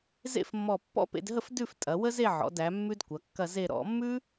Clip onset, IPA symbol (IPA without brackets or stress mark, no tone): z